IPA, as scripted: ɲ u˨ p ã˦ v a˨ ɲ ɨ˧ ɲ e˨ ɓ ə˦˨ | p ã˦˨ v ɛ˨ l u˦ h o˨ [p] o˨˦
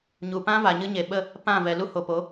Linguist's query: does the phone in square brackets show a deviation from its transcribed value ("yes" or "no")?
no